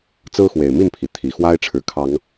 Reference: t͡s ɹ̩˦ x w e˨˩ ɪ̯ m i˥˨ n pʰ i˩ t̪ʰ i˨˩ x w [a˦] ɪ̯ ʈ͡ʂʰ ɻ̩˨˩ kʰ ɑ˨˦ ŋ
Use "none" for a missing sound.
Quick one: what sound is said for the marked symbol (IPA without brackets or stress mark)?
a˦